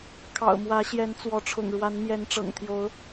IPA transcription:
kʰɑ̰˨˩ʊ̯mwä˨˦ɕjɛ˨˦n t͡swɔ˨˦ʈ͡ʂʰʊ̰˨˩ŋɻwa˨˦n mjɛ˨˦nʈ͡ʂɤ̰˨˩ŋt̪ʰjo˨˦ʊ̯

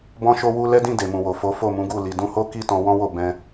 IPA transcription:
bɔ̃˦ʃo˦ wu˦ lɛ˦dĩ˦˨ de˨mũ˨wo˨fo˨˦ fo˦˨mũ˨˦ɡu˦˨ li˨dũ˧ho˦ ki˦˨ tɔ̃˧wɔ̃˦wo˦˨ bɛ̃˧

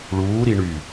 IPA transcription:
ɭuːɾiɳy

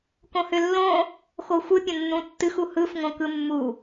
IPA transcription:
kõhʏlːõ | xoxʷɯ pʲə̃nːũtːɨx uhɯf ŋõkɯmːu

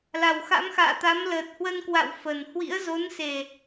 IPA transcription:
la˨˩wxa̰˧˥mxa̰ː˧˨t̪a˨˦m ləː˨˩t̚hwə˧nkwa̰˧˨w fə˨˩n hwḭ˧˥ə̯zo˨˦nse˨˩

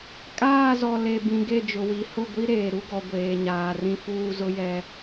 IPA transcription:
kʼaː˦˨zɔ˨ le˨bĩ˨ ɡe˦˨d͡ʒʊ˨wi˨˦ hʊ˦˨ɡʷi˦ ɾeː˨ɾu˦ɡɔ˨ ɡʷeː˨ɲaː˨rĩ˦ fuː˦zʊ˦jɛ˦

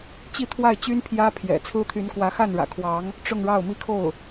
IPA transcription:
t͡ɕi˥˧t̪ʰwa˥˩ɪ̯t͡ɕy˥n pʰjä˥pʰjɛ̰˨˩ t͡sʰɹ̩˥t̪ʰy˧˥n kwä˧˥xa˥˩nɻä̰˨˩kʰwɑ˧˥ŋ | ʈ͡ʂʊ˥˧ŋɻɑ˥˩ʊ̯ mi˥kʰo˥˩ʊ̯

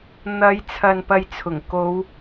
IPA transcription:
n̪ɐ˨˧jt͡sʰɐ˨n pɐ˧jt͡sʰʊ˨˩ŋ ko˨˧w

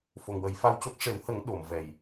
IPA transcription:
fo˨˩ŋwə˨˩˦jfa˧wco˦˥k̚ ʂe˨˩˦whə˨˩˦ŋ ɗo˨˩˨m vɛ˨˩j

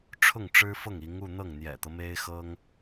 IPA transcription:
ʈ͡ʂʰʊ˥˩ŋʈ͡ʂɻ̩˥fɤ˥˩ŋ i˧˥ŋu˥˧ n̪ɤ˥˩ŋn̪jɛ̰˨˩t̪ɤ˦ me˥ɪ̯xɤ˥ŋ

